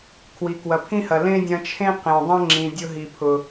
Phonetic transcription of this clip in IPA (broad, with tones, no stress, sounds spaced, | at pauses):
kʰ w i˨ k w ɐ˨ pʰ ĩ˦ h ɐ˨ l ẽ˦ dʲ ɐ̃˧ t͡ʃʰ ẽ˦ q ẽ˨ dˤ ɐ̃˦ ŋ͡ǁ ĩ˨ dʲ ʊ˧ ɦ i˨ pʰ ʊ˨